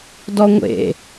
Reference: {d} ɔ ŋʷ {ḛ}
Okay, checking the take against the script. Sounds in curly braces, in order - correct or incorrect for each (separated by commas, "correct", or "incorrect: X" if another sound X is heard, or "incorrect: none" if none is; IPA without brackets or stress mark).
correct, correct